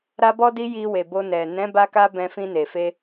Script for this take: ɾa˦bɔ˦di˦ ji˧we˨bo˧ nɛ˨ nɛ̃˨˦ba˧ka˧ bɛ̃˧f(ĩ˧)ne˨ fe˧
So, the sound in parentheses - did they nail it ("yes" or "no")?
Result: yes